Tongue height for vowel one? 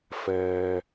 mid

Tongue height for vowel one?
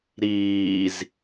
high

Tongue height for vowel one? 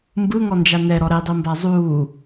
high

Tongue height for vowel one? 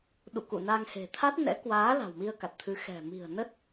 high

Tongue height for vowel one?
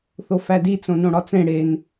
mid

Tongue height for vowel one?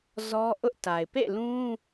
mid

